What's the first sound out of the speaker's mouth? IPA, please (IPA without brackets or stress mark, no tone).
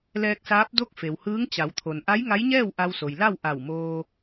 l